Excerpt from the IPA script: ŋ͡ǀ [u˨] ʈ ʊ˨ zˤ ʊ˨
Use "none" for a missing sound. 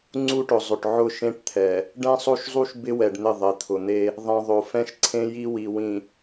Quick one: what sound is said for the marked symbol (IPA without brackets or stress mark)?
u˦